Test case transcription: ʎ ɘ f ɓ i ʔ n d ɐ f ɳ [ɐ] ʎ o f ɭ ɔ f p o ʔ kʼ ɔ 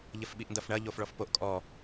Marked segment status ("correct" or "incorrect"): correct